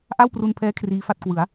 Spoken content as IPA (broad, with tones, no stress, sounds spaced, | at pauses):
ʔ a˥˩ w p r u˧ n pʰ ɛː˦˥ kʰ r iː˦˥ f a˥˩ t̚ k w ɯ˩˦ a̯